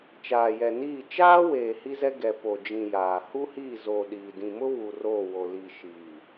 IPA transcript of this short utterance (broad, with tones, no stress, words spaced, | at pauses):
t͡ʃaː˨jɛ˨ niː˦˨ t͡ʃaː˦weː˨ hi˦zɛ˦ ɡɛ˨po˨d͡ʒĩ˨ jaː˨ hu˦hiː˦˨zoː˨ ɗiː˨ dĩ˨mʊ˦ βu˨ roː˦˨wo˨ li˨ ʃi˨